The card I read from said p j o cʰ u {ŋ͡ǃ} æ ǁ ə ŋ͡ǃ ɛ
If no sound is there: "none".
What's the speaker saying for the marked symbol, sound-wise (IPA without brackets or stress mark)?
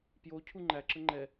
ŋ͡ǃ